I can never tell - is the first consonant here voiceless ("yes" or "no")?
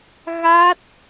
no